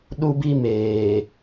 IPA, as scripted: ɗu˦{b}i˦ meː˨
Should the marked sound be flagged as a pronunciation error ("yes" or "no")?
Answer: no